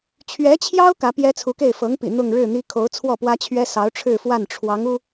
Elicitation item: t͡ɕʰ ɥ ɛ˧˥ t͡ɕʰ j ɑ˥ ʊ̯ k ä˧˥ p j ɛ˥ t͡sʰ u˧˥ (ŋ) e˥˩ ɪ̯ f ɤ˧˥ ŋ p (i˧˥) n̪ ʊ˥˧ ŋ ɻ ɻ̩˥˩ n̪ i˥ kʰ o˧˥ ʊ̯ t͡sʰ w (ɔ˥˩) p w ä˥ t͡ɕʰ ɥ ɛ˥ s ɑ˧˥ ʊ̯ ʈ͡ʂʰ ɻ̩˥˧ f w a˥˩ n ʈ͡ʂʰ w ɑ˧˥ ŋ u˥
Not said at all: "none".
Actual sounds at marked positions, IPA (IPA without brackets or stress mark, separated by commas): k, ḭ˨˩, ɔ˥˩